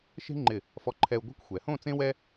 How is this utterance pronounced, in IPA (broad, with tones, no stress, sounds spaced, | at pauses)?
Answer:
ʃ e̤˥ ŋ͡ǃ ɪ˧˩ | f ɔ˧ ǃʰ ɛ˧ u̯ ɡʷ ɛ̤˥˧ kʷ xʷ ɛ˩˧ h õ˥˧ t͡s ẽ˥ w ɛ˥